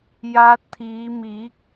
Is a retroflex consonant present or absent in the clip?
absent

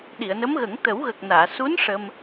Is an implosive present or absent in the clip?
present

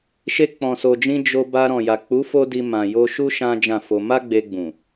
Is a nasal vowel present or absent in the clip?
present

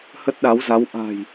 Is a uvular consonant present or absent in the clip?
absent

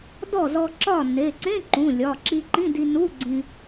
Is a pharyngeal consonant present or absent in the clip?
absent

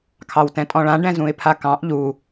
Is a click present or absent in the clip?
absent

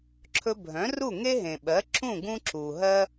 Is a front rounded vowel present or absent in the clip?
present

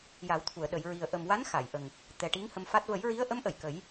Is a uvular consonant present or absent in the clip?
absent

